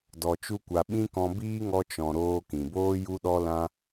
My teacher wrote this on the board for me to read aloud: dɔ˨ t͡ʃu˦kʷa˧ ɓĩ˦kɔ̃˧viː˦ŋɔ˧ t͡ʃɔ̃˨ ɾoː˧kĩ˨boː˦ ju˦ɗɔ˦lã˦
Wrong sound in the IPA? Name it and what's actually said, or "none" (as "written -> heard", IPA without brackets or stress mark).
v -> b